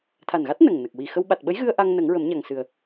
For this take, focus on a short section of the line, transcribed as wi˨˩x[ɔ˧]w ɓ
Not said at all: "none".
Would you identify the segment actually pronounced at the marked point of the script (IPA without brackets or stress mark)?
ə˧